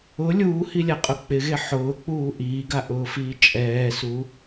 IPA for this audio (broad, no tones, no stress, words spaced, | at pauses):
ʊ lʲuːhilʲaqʼʊ k͡pɪɣe ħʊːk͡puː ʔiːɡaʔʊːfiː t͡ʃʼɛːsu